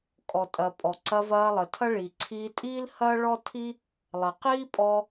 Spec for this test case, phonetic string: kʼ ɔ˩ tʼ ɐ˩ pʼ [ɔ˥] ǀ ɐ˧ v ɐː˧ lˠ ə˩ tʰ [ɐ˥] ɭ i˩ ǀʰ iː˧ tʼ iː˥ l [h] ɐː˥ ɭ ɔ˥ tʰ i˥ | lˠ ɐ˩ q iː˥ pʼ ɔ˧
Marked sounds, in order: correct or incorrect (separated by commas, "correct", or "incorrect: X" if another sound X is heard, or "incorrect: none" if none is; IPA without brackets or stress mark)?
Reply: incorrect: ɔ˩, correct, correct